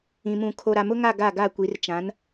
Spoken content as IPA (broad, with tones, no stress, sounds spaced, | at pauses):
ĩ˨ m ũ˨ kʰ o˨ ɾ a˨ m ʊ˦ ŋ a˦˨ ɡ a˦˨ ɡ a˦˨ kʷ i˨˦ r t͡ʃ ã˨˦ n